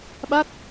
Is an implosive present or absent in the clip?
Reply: present